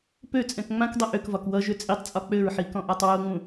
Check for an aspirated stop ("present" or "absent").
absent